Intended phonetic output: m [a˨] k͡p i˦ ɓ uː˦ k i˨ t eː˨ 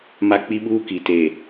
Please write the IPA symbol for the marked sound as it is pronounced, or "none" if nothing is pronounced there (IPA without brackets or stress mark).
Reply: a˦